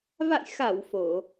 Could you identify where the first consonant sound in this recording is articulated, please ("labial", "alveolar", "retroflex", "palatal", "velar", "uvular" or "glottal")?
labial